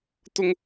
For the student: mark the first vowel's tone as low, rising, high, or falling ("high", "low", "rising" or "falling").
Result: high